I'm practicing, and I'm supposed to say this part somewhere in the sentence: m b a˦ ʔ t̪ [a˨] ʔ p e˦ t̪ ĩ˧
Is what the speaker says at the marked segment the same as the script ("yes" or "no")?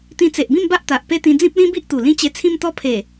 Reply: yes